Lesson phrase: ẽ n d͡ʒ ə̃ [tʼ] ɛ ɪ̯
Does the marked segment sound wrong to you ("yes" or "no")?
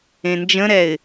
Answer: yes